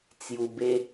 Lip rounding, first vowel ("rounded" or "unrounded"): rounded